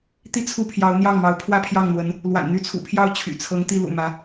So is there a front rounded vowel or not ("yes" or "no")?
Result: yes